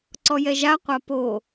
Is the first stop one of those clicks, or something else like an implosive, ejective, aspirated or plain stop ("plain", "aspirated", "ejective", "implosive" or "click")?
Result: click